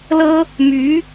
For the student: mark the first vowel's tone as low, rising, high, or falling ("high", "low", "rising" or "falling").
high